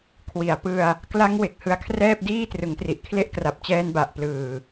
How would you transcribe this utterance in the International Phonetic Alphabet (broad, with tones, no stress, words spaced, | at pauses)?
kʰwi˩˦a̯pɯ˧a̯ | kla˦˥ŋ we˨˩k̚hɯ˧a̯kʰrɛː˥˩p̚ diː˥˩trɯ˩˦ŋtri˨˩ʔkʰle˥˩ʔ kra˨˩p̚t͡ɕɛː˧nba˨˩ʔ plɯː˨˩